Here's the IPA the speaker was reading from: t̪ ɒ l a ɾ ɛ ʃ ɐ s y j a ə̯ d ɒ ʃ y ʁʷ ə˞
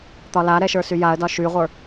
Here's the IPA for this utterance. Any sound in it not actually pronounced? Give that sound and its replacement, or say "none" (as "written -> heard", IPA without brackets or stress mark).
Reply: ɐ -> ə˞